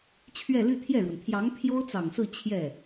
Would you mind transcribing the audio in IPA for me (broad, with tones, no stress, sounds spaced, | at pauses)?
t͡ɕʰ ɥ ɛ˥˧ l y˥˧ t̪ʰ j ɛ˥˩ ɻ w ə˩ n t̪ʰ j ɑ˧˥ ŋ pʰ j o˥ ʊ̯ t͡s ɑ˨˩ ŋ s ɹ̩˥˧ t͡ɕʰ j ɛ˥˩